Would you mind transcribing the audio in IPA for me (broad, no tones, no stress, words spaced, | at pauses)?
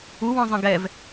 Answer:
uwɔ̃zˤə̃ ɡɛv